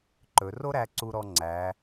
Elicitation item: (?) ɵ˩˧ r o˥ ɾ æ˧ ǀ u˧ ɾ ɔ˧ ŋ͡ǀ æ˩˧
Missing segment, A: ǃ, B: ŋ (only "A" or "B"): A